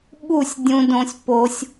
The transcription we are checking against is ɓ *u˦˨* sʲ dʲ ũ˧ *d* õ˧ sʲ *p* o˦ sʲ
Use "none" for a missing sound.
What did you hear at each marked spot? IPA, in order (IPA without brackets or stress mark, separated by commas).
u˦˨, d, p